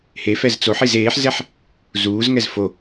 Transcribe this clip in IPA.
h e f ɛ z t͡s o ħ i z eː ħ z ɛ ħ | z uː z ŋ ɛ z f o

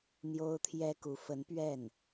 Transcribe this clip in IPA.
n̪ j o˥ ʊ̯ t̪ʰ j ɛ˥ k u˧˥ f ə˧˥ n p ɥ ɛ˥˩ n

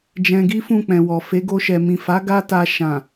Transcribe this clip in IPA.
d͡ʒ ɛ̃˧ ɡ i˦ f ũ˦˨ k͡p ɛ̃˨ w ɔ˨ f e˨˦ ɡ o˧ ʃ ɛ˨ m ĩ˨ f a˨˦ ɡ a˦ t a˧ ʃ ã˨

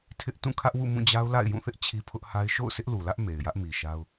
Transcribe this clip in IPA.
tʰ ɪ˦ ʔ t ũ˦˨ kʰ ä˦ ʔ w ṵ˦˨ m ũ˦˨ d͡ʑ a˦ ʊ̯ l a̰˦˨ ɪ̯ j ũ˦˨ θ ɪ˦ ʔ t͡ɕʰ i˦ pʰ ʊ˦ ʔ h a˦ ɪ̯ ʃ o̰˦˨ ʊ̯ sʰ ɪ˦ ʔ l u˨ l ä˦ ʔ m e˨ ɪ̯ j ä˦ ʔ m i˨ ʃ a˦ ʊ̯

